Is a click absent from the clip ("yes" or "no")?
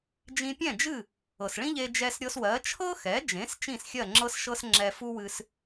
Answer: no